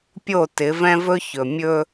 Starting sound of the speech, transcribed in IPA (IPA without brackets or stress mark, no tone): pʲ